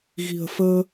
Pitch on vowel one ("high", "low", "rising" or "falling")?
low